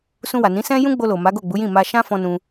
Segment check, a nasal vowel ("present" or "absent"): present